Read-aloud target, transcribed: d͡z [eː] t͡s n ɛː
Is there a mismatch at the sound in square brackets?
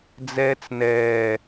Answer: yes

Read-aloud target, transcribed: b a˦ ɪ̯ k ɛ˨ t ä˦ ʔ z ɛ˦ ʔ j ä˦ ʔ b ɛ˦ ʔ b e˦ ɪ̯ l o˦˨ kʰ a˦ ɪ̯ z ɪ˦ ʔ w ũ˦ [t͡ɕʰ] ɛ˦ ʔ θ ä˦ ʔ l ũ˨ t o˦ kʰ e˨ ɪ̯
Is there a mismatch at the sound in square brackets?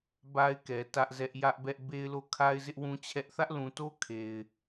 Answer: no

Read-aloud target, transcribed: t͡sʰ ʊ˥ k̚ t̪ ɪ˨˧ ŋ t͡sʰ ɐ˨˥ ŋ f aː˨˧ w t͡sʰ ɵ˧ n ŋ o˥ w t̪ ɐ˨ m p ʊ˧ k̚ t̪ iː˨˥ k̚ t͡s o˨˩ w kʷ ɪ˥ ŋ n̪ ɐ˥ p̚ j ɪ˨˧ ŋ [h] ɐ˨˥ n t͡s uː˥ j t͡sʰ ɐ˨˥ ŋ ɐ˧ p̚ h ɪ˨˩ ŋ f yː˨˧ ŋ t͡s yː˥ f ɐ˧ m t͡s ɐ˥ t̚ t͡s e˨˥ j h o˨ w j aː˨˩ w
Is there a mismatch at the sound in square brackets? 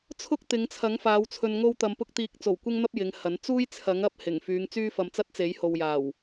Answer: no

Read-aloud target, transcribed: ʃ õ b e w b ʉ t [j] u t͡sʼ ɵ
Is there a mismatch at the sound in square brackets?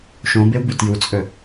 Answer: no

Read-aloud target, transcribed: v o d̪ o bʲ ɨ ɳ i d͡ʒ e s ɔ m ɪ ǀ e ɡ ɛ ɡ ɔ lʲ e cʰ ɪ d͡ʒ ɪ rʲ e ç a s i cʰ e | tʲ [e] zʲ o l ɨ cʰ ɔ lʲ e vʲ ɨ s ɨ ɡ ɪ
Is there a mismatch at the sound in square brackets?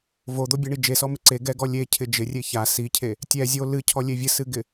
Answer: yes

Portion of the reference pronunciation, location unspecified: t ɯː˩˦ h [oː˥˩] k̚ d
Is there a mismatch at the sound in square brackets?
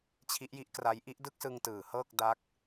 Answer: yes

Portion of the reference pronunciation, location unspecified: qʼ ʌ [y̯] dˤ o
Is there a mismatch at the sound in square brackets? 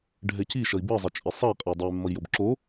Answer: yes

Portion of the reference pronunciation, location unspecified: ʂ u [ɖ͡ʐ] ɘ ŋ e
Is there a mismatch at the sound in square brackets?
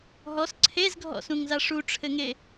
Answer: yes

